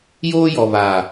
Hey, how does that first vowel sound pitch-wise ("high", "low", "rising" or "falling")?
high